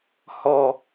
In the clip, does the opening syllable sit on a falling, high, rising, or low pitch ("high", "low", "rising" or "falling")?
low